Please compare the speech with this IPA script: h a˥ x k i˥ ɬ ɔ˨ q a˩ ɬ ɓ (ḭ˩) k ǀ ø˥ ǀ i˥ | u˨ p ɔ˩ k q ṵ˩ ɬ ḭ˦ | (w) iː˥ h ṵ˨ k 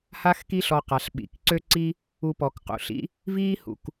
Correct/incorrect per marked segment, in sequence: correct, incorrect: v

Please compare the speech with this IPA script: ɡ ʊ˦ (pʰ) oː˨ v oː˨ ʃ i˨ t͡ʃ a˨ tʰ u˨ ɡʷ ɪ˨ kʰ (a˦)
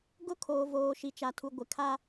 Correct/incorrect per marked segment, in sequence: incorrect: kʰ, correct

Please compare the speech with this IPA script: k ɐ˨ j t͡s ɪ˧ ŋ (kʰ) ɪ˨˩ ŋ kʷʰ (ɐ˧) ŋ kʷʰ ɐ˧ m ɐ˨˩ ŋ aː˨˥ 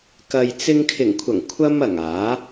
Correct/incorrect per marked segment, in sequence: correct, incorrect: ɐ˨˩

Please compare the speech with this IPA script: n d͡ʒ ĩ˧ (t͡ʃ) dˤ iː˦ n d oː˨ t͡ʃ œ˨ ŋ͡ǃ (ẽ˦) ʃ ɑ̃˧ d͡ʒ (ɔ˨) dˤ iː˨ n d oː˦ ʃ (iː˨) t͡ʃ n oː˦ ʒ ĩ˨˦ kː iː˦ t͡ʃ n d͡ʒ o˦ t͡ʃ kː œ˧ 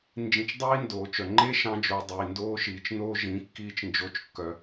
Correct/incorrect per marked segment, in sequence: correct, incorrect: e˦, incorrect: o˨, correct

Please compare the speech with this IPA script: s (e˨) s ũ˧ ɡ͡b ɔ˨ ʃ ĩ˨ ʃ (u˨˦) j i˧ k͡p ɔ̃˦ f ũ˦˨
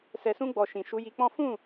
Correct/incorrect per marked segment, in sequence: incorrect: ɛ˨, correct

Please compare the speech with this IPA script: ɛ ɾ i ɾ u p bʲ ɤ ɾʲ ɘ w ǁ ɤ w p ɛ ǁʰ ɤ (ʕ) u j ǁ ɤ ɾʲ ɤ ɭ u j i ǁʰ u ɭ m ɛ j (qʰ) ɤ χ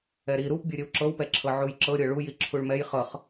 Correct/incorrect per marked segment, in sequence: correct, incorrect: χ

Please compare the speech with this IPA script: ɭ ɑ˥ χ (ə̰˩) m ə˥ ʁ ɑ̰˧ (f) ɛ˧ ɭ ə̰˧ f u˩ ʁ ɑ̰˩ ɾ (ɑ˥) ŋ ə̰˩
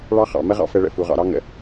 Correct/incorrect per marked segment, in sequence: incorrect: ɑ̰˩, correct, incorrect: ɑ˧

